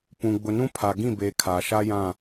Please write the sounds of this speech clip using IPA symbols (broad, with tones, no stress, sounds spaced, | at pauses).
p ũ˨ ɡ͡b ʊ˨ n ũ˦ pʰ a˨ ɡ ĩ˦˨ b eː˨ kʰ aː˨ ʃ a˦ j ã˦˨